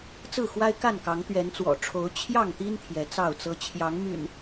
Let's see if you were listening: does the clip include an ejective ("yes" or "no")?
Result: no